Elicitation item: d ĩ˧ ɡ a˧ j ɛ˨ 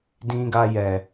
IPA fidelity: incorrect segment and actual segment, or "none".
none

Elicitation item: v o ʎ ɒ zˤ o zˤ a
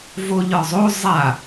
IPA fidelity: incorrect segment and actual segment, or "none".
none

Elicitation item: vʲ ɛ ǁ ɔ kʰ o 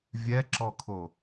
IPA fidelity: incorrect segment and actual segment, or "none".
none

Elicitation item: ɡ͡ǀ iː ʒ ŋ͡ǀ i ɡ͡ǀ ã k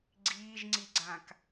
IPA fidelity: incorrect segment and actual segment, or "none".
none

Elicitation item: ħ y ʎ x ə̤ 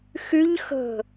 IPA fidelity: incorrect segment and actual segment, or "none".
ħ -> x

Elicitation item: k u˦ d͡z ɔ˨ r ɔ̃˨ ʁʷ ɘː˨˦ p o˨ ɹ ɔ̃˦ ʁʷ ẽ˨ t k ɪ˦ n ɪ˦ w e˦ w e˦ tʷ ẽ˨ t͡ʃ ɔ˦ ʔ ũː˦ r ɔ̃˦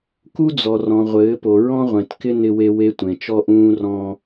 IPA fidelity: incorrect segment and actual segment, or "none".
none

